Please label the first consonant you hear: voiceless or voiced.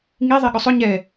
voiced